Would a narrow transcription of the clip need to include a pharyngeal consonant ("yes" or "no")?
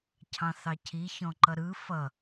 no